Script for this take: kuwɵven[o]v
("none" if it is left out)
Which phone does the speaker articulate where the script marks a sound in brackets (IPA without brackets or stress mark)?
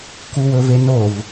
o